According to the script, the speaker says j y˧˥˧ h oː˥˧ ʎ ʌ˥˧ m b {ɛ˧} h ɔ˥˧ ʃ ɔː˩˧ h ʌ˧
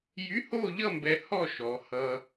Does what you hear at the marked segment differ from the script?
no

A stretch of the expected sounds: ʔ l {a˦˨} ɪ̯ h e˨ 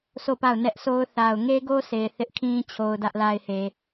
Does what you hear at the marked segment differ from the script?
yes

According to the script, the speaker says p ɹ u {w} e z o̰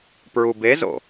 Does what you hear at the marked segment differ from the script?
yes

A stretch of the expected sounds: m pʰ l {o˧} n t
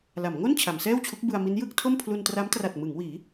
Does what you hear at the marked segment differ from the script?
yes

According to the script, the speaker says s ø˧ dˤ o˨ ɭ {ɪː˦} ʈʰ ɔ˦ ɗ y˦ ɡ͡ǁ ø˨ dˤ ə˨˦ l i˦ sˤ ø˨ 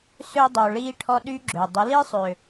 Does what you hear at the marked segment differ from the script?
yes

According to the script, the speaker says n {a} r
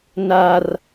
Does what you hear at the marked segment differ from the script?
no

